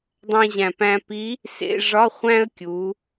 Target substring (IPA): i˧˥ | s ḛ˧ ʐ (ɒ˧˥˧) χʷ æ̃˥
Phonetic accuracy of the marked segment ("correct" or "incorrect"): correct